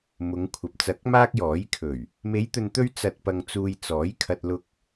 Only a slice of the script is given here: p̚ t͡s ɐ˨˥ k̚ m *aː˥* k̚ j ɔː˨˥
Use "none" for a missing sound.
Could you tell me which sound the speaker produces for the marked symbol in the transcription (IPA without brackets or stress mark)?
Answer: aː˥